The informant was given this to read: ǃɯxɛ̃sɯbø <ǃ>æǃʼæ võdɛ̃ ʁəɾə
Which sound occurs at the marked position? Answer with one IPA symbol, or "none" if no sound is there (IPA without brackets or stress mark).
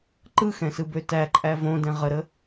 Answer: t